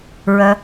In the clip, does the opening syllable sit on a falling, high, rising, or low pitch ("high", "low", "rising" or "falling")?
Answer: low